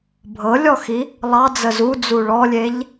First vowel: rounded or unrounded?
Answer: unrounded